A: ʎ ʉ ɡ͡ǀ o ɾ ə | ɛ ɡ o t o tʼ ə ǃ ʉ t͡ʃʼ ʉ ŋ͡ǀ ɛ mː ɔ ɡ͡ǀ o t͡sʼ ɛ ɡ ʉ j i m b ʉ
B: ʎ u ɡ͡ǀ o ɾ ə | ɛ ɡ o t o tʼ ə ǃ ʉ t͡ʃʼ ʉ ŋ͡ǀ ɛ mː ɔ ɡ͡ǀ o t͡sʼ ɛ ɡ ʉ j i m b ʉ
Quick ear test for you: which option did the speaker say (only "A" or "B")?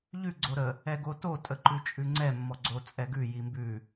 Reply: A